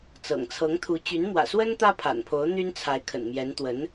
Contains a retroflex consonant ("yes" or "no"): no